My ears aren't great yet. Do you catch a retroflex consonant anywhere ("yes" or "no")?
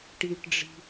yes